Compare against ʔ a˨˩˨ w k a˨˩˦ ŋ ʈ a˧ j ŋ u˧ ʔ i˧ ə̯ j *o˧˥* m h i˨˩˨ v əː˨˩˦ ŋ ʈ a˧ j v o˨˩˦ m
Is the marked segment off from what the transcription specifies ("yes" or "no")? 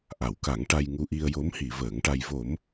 no